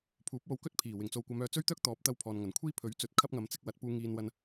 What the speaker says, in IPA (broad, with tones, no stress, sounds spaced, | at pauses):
pʰ uː˨˥ p̚ w o˧ w k ɵ˥ t̚ pʰ iː˨˩ w ɪ˨˩ ŋ t͡s o˨ w kʷ ɐ˨˧ m œː˨˧ t͡s ɵ˥ ɥ t̪ œː˥ k̚ t̪ ɔː˨˥ p̚ t̪ ɐ˥ w pʰ ɔː˨ n ŋ ɐ˨˩ n kʷʰ iː˥ pʰ ɵ˨˥ ɥ t͡s ɵ˨˥ t̚ kʰ ɐ˥ p̚ ŋ ɐ˨ m t͡s ɪ˧ k̚ w ɐ˨˥ t̚ p uː˧ ŋ iː˧ n w ɐ˧ n